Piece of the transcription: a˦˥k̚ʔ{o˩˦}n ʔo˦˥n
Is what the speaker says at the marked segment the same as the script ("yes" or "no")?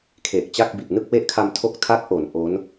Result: yes